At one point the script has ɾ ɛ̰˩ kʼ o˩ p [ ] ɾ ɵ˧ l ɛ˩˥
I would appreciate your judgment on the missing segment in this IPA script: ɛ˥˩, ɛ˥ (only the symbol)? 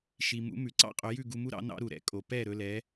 ɛ˥˩